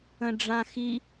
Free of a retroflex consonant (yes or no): no